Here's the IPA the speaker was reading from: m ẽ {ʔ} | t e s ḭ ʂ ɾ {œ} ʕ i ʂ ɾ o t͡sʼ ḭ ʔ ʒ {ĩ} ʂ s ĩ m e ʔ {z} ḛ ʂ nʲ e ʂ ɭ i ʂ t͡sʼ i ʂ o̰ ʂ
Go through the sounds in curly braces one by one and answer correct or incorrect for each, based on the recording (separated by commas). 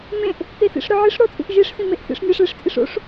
correct, correct, incorrect, incorrect